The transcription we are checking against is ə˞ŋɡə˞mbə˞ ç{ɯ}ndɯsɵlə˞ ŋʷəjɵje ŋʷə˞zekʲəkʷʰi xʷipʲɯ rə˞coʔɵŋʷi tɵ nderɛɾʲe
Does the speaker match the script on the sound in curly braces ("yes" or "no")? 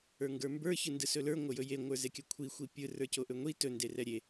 yes